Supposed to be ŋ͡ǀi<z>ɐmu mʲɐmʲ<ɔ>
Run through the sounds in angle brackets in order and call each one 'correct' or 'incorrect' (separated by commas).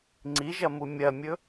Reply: incorrect, incorrect